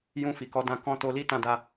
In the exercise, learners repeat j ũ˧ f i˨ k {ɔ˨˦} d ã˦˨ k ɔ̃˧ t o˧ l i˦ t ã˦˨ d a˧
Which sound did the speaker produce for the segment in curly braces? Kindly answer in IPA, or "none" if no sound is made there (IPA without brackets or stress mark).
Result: ɔ˨˦